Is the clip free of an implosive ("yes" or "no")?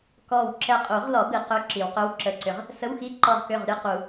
yes